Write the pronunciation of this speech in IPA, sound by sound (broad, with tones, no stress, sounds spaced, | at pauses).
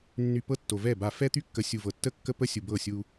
nː y˨ p ɤ˦ tː o˨ v ɛ˦˨ b a˨ f ɛ˦ t̪ y˦ kː ə˨ sʲ u˨ v ɤ˨ tː ə˦ kː ə˦ p ə˦ sʲ u˨ b ɤ˦˨ sʲ u˦